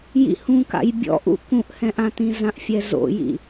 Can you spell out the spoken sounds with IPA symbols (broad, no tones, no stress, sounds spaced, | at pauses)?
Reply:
j ḭ h ũ k a̰ j bʲ ɔ̰ ʔ ṵ k ũ ʔ h ɛ̃ ʔ ã t ĩ z ã ʔ fʲ ɛ z o̰ j ḭ